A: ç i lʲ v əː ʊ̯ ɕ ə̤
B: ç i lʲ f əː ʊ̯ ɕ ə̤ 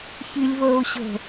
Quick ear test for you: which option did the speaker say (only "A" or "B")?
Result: A